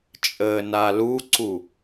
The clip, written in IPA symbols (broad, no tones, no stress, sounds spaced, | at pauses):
t͡ʃʼ əː n a l u ǀ u